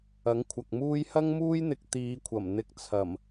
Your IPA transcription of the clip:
ɐ˨˥ ŋ kʷʰ ɐ˨ k̚ m uː˥ j h ɐ˥ ŋ m uː˥ j n̪ ɪ˧ k̚ t̪ iː˨˧ kʷʰ ɐ˨˩ m n̪ ɪ˧ k̚ t͡sʰ ɐ˨˩ m

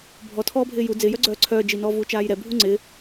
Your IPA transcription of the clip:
bʱ ɔ tʰ ɔː bʱ ɪː j u d͡z ɪː j œ ɡ͡ǀ œː ǀʰ œː d͡ʒ i n ɔː v uː t͡ʃ aː j ɾ ɛ bʱ u ŋ͡ǀ ɪː

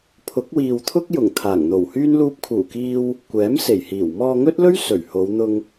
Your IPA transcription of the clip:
pʰ ʊ˨˥ k̚ w iː˨ w t̪ʰ ʊ˥ k̚ j ʊ˨˩ ŋ t̪ʰ aː˨˩ ŋ n̪ o˨˩ w h yː˥ n l uː˧ p̚ kʰ uː˨˩ k iː˧ w | kʷ ɛː˨˥ m s e˨˩ j h iː˨˩ w m ɔː˧ ŋ ɵ˥ t̚ l ɵ˥ ɥ s ɵ˨˩ ɥ h o˨˧ w n̪ ʊ˧ ŋ

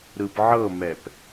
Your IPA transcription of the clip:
ɾ ɯ p ʕ ɤ m ɛ p

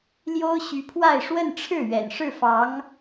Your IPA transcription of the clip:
l j o˥ ʊ̯ ɕ y˧˥ pʰ w a˥˧ ɪ̯ ʂ w ə˥˧ n ʈ͡ʂʰ ɻ̩˥˩ ɥ ɛ̰˨˩ n ʂ ɻ̩˥˩ f ɑ˧˥ ŋ

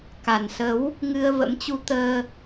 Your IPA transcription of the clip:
k a˨˩ n s ə˨˦ w | ŋ ɨ˧ ə̯ v ə̰˧˥ m t͡ɕ u˧ t̪ əː˧

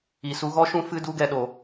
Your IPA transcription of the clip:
i˨ s u˧ ɣ ɔ˦ ʃ ũ˦ f ɨ˦ d u˦ ɡ ɛ˧ ɗ o˨

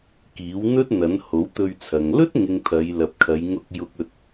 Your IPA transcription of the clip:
k iː˨˥ w n̪ ɵ˥ t̚ n̪ ɐ˨˥ n h o˨˥ w t̪ ɵ˧ ɥ t͡sʰ ɐ˨ ŋ l ɵ˥ t̚ ŋ ɪ˨ ŋ t̪ʰ ɐ˨˧ j l ɐ˨ p̚ kʰ ɐ˨˧ j ŋ ʊ˧ k̚ j ʊ˧ k̚ ɵ˧ t̚

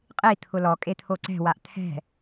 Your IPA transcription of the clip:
qʼ i t̪ʰ ʊ l ɔ kʼ e t̪ʰ o ǀ ɛ̤ w a ʔ t̪ʰ ɛ̤

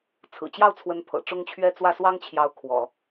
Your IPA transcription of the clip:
t͡sʰ ɹ̩˨˩ t͡ɕ j ɑ˥˩ ʊ̯ t͡sʰ w ə˧˥ n pʰ ɤ̰˨˩ ʈ͡ʂ ʊ˥ ŋ t͡ɕʰ ɥ ɛ˥ t͡s w ä˥˩ s w ɑ˥ ŋ t͡ɕʰ j ɑ˧˥ ʊ̯ kʰ w ɔ̰˨˩˦

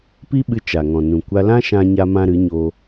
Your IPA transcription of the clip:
p i˦ ɓ ɨ˧ t͡ʃ a˨ ŋ ɔ̃˨ n ũ˨ kʷ a˧ l ã˦ ʃ ã˧ ɲ a˦ m ã˦ ɾ ɨ˨˦ ɲ o˧

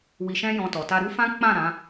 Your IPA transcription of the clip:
w i˧ ʃ ɛ̃˦ j ɔ̃˧ t ɔ˨ t a˧ ɾ u˦ f ã˦ k͡p ã˦˨ ɾ ã˨˦

